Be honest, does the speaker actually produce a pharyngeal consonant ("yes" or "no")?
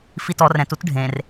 no